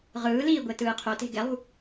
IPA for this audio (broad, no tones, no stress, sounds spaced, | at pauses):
ʁ ɯː l iː ɡʷ e t ɯː qʰ o t e̤ ɡ ɛ lˠ ṳ